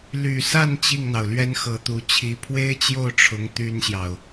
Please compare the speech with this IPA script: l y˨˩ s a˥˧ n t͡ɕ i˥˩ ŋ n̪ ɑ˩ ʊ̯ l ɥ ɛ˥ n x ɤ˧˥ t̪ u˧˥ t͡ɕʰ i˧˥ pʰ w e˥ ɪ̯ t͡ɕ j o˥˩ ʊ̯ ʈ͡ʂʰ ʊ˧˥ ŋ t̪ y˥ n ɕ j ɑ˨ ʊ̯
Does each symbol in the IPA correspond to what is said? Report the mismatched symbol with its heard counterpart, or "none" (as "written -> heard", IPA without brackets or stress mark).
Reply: none